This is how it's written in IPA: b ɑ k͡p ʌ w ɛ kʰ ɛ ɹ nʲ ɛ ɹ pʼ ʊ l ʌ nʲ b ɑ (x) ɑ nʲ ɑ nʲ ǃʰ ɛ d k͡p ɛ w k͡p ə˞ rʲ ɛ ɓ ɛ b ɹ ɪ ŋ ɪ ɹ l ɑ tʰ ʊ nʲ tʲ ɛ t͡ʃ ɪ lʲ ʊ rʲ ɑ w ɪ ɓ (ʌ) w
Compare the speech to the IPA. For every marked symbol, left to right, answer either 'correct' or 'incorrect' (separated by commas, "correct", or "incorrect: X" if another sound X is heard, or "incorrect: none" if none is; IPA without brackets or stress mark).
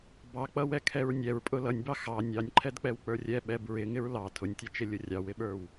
correct, incorrect: ə˞